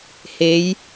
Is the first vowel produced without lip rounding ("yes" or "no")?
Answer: yes